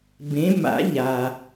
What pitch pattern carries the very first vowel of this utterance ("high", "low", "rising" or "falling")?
rising